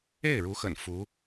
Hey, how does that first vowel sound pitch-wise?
falling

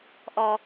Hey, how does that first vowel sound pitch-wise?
high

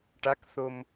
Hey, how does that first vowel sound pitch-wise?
rising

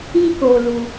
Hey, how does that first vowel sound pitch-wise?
high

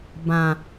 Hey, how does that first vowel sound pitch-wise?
low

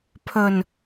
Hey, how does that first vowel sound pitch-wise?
low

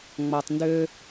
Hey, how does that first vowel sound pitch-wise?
low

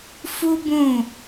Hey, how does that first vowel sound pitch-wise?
high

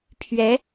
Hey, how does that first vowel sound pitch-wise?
rising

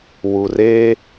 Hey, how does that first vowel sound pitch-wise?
low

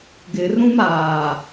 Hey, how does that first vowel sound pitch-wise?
low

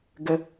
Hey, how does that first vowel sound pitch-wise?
rising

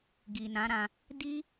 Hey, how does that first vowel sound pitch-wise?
low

